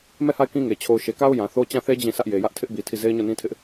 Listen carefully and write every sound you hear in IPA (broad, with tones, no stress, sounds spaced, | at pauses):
m ɛ˦˨ h a˦˨ ɪ̯ k ĩ˦ ŋ e˨ t͡ɕʰ o˨ ʊ̯ ʃ e˨ k a˦ ʊ̯ j ã˨ θ o˦ t͡ɕ ã˦˨ θ e˦ d͡ʑ ĩ˦˨ sʰ ä˦ ʔ j e˨ j ä˦ ʔ tʰ ɪ˦ ʔ b i˨ tʰ i˦˨ z e˦ ɪ̯ ɲ o˦˨ n ĩ˦ tʰ ɪ˦ ʔ